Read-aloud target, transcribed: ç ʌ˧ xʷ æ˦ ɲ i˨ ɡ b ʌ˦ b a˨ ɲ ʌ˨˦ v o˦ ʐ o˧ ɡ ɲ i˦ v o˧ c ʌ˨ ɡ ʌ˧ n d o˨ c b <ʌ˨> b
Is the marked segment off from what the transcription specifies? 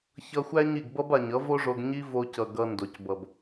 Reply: no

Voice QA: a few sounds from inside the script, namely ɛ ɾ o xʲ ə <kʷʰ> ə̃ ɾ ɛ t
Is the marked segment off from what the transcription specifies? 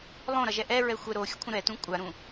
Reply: no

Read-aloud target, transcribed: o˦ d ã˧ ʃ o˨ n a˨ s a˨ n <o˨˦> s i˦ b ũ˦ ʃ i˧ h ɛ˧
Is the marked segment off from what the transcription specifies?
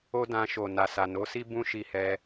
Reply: no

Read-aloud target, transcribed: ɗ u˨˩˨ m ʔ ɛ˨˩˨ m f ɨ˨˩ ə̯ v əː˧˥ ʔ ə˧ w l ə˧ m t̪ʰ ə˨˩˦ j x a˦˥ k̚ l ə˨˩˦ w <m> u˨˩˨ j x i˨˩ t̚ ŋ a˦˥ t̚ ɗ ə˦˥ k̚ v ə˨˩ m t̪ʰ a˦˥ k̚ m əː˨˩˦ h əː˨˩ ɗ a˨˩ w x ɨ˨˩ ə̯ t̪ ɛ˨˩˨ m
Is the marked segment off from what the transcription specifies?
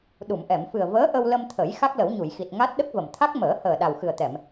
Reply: yes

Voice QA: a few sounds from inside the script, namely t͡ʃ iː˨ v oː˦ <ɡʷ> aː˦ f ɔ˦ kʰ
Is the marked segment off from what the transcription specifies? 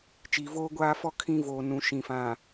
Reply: no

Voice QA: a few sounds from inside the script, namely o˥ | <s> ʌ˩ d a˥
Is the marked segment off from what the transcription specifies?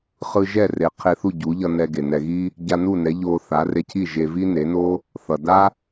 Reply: yes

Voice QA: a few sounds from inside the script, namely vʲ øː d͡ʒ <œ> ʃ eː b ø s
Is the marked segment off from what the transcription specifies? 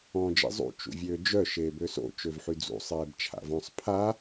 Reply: no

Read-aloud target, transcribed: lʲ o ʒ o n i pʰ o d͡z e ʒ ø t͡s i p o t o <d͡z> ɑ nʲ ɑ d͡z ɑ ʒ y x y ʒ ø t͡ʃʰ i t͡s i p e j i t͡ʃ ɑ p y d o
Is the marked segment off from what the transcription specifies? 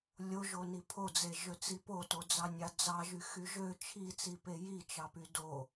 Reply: no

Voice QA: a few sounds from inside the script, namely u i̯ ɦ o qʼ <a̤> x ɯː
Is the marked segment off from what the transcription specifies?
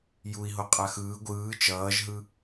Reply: yes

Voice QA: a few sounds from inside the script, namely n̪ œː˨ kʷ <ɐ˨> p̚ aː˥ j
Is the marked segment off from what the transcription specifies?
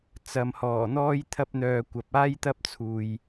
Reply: no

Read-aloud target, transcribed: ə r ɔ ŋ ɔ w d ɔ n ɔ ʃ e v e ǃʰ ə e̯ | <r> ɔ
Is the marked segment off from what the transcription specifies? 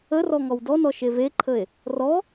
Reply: no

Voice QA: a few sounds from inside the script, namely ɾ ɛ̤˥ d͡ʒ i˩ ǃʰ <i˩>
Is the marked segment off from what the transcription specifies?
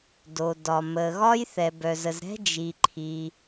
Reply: no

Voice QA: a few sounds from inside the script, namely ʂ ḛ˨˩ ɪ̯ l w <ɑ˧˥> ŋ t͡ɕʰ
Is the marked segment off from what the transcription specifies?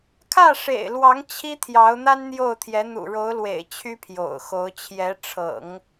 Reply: no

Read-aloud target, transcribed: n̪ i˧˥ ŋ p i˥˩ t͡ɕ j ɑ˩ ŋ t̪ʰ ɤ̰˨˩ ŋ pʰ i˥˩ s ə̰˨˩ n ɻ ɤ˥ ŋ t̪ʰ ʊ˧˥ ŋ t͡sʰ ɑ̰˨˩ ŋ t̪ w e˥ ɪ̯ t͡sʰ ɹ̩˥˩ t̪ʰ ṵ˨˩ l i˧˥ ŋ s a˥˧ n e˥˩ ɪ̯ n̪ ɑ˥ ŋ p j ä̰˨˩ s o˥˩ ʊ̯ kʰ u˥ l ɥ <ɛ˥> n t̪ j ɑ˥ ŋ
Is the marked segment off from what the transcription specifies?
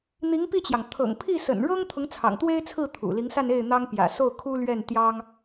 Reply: yes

